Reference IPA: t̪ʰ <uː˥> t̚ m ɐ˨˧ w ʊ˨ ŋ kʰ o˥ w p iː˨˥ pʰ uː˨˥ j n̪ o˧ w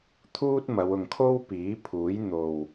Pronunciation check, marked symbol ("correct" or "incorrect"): correct